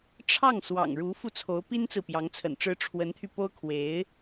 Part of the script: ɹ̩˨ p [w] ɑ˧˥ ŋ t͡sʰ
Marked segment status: incorrect: j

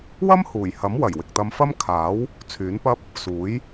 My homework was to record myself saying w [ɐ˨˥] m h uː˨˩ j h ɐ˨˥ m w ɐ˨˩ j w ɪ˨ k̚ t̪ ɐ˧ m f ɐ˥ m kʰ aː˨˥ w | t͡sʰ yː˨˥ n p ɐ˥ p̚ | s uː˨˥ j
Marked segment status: incorrect: ɐ˥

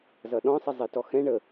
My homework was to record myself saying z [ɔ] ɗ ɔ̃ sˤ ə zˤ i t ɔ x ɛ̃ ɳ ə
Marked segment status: incorrect: ʌ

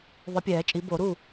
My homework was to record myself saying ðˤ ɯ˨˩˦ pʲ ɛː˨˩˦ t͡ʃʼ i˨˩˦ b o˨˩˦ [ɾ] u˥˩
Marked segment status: correct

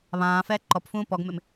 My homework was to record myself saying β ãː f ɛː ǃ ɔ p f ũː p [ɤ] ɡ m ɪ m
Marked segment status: incorrect: ɔ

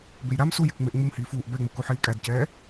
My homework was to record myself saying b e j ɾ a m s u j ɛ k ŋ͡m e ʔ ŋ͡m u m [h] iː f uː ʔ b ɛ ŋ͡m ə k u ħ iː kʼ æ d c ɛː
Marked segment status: correct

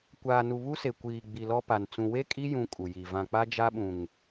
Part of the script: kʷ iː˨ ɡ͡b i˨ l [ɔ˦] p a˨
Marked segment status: correct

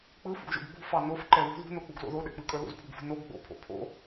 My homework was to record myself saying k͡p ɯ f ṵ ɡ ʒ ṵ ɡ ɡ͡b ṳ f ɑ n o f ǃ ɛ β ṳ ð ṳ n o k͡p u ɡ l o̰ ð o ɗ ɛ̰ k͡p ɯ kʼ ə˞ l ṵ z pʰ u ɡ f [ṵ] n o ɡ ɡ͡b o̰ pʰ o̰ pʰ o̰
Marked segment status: incorrect: ṳ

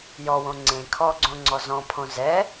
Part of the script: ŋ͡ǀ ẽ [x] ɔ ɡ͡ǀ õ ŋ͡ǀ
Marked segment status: incorrect: kʰ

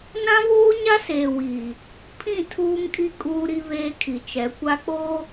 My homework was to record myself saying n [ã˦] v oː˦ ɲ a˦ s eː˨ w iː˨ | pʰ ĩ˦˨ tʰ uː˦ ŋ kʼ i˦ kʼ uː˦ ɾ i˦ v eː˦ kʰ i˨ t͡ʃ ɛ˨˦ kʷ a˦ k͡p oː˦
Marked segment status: correct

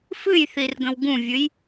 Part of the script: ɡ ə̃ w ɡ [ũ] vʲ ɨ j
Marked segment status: correct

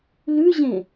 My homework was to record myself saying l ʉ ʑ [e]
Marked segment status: incorrect: ẽ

